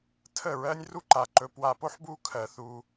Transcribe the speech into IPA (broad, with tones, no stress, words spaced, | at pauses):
tʰə˦˨ɹɜ˦nʲ ru˦ǃa˨ǃɵ˧ pwa˧po˦ħbu˦ kʰɜ˧θu˦